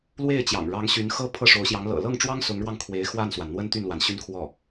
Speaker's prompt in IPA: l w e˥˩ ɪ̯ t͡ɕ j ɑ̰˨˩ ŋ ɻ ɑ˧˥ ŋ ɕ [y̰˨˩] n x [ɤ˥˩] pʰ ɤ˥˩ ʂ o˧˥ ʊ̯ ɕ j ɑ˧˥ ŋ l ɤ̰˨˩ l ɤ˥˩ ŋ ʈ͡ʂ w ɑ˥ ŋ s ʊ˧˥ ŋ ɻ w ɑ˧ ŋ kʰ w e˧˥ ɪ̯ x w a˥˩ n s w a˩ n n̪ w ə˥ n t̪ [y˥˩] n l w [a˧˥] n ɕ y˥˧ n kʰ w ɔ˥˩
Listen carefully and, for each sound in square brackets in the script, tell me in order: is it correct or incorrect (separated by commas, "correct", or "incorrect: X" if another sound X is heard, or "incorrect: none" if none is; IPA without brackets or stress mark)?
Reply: incorrect: y˧˥, incorrect: ɤ˥, correct, incorrect: a˩